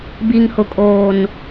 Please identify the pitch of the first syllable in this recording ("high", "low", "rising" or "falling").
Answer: low